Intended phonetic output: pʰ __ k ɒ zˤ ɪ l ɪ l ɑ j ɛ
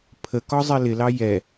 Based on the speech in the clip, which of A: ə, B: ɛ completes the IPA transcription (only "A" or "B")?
A